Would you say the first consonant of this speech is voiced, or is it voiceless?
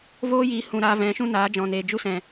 voiced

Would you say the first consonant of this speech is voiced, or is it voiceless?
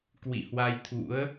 voiceless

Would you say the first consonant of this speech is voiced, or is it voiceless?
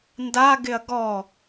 voiced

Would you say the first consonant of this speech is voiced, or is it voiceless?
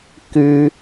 voiceless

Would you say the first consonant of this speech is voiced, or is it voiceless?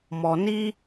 voiced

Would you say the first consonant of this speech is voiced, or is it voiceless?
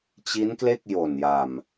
voiceless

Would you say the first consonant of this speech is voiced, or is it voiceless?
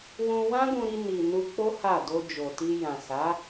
voiced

